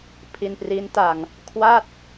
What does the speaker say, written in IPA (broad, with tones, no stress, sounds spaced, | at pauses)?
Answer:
pʰ i˧ n p r i˦˥ n t a˧ ŋ | kʰ w a˥˩ t̚